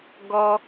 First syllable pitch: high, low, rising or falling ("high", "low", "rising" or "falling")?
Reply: high